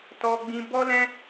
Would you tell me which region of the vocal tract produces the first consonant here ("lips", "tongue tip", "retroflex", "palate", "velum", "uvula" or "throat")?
tongue tip